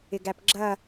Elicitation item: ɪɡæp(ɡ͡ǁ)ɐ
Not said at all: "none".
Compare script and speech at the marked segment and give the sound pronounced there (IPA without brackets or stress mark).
ɡ͡ǁ